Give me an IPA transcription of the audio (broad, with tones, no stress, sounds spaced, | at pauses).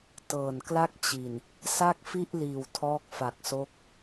t ɤː˨˩ n k l a˥˩ k̚ t͡ɕ i˨˩ n | s a˥˩ k̚ f i˥˩ ʔ l iː˨˩ w tʰ ɔː˦˥ k̚ f a˨˩ k̚ s o˦˥ k̚